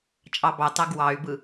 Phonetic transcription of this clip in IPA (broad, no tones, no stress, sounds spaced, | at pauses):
t͡ʃʼ ɑ b ɑ t ɑ ɡ w ɑ y̯ b ɯ